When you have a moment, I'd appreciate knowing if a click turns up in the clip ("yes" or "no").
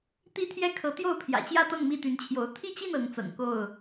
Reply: no